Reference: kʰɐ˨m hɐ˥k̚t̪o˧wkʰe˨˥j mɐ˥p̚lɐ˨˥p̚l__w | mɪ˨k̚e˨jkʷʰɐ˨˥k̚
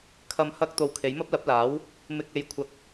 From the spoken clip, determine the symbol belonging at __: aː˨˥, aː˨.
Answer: aː˨˥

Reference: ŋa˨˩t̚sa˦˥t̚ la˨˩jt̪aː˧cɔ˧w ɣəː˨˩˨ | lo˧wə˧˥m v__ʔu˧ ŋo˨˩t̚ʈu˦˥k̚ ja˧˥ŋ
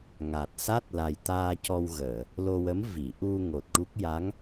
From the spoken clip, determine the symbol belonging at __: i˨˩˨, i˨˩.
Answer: i˨˩˨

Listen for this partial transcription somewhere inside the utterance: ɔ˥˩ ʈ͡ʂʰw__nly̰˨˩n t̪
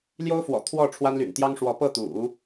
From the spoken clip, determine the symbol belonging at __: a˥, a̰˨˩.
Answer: a˥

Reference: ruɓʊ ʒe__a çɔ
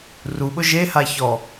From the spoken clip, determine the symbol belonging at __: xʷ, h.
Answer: h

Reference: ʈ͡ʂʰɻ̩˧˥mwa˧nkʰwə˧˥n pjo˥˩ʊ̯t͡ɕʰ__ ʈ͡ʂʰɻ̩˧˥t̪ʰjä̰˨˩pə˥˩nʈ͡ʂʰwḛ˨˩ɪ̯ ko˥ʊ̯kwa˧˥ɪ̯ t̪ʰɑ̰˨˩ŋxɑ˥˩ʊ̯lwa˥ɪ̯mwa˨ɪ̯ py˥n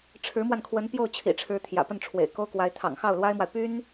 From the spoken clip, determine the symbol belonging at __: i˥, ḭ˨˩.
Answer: ḭ˨˩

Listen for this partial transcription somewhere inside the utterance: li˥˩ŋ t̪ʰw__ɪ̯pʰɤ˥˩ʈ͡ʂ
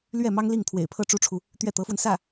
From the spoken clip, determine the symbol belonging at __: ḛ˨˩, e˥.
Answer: ḛ˨˩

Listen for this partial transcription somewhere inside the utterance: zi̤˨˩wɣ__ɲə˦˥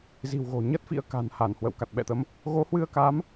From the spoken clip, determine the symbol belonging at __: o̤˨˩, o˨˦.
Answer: o̤˨˩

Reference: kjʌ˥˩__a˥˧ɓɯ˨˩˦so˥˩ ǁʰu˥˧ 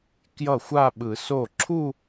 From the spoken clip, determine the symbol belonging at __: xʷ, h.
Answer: xʷ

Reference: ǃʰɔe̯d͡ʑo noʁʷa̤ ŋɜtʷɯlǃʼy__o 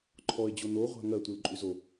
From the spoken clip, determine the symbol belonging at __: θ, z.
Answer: z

